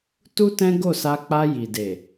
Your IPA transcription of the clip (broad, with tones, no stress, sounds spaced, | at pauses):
t u˦ t ɛ̃˦ ɡ o˦˨ s a˧ k͡p a˧ j i˨ d e˨